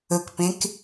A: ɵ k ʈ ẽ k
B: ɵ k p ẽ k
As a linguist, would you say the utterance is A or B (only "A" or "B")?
B